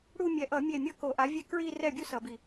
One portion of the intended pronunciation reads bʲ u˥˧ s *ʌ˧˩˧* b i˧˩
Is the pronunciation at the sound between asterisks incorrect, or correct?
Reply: correct